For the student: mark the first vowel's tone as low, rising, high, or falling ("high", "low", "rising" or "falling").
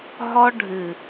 high